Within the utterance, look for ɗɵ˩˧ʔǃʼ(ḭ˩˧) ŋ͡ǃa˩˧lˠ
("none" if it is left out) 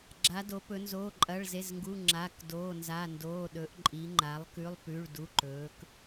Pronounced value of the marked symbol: i˩˧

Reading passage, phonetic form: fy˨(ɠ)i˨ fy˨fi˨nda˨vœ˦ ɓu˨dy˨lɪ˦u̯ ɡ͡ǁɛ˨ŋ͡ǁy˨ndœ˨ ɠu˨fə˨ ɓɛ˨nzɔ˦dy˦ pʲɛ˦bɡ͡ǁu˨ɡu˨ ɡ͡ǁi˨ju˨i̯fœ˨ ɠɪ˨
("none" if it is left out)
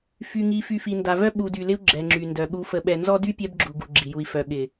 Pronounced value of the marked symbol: ŋ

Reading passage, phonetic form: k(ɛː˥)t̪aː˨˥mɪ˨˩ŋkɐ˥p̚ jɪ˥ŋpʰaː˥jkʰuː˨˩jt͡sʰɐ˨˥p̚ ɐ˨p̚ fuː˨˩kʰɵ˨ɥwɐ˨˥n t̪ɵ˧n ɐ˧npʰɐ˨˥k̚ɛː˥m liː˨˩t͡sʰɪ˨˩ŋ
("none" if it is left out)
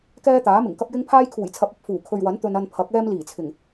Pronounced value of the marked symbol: ɛː˥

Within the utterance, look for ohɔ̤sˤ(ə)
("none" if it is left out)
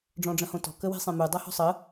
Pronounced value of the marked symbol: ə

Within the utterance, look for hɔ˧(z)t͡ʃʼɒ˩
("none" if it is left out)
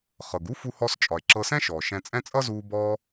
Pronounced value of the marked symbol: s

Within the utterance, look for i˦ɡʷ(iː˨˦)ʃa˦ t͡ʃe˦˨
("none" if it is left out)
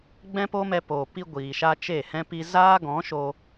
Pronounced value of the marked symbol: iː˨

